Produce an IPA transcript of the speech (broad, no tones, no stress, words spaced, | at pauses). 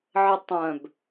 ʕətˤœ̃b